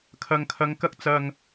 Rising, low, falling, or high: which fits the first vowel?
low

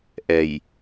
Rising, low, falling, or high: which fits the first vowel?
low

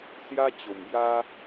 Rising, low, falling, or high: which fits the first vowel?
high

